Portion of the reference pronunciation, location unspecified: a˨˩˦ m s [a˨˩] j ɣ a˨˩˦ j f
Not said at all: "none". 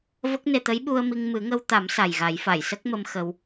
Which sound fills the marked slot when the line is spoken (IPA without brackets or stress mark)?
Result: a˨˩